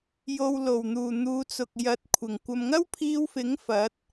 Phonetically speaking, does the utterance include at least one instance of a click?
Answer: no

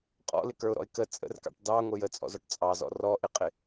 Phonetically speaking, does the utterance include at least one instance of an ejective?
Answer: yes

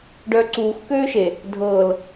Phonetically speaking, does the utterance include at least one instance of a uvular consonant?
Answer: no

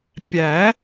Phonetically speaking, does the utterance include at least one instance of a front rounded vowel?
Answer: no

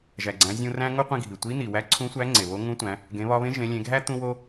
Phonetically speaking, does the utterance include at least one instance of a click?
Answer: yes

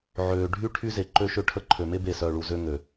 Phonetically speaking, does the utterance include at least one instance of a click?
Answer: yes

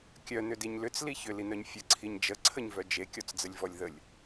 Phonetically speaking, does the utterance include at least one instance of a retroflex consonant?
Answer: no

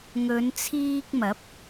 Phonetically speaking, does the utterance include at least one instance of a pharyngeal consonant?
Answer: no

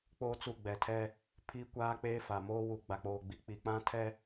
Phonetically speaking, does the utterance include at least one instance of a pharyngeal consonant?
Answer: no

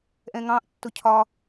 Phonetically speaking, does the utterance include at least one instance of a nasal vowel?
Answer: yes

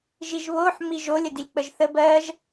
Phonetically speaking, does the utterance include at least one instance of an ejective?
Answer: no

